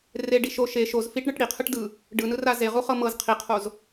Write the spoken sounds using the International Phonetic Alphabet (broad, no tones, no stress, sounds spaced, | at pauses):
r e ɖ i ʃ o ʃ e ʃ o z f i ʈ ɳ ɯ ʈ ɽ i qʰ ɯ ʈ d ɯ | ɖ ɯ n ɯ r a z e ʁ u χ ɤ m ɤ z qʰ i qʰ o z